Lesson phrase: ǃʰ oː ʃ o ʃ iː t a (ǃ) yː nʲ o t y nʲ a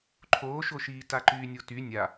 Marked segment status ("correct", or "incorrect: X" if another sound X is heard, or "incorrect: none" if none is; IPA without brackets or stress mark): correct